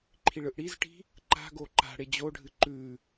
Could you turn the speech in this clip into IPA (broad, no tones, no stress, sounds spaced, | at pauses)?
ǃʰ i ɭ ɯ ʔ ɽ i z ʈ i̤ | ǃ a̤ ɡ o ǃ a̤ ɽ e d͡ʑ o ɖʱ ɨ ǃ ʉ